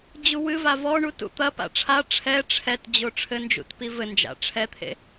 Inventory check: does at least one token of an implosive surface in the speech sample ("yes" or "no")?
no